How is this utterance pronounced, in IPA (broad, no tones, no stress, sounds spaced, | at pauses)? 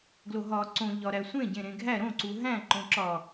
ɡ l o ɦ ɒ ǀ õ ʎ ɒ ɾ æ sʷ ẽ ɟ ẽ ɾ ẽ ɡʱ æ ɾ õ ǀ u ɦ æ̃ ǃ õ ǁ ɒ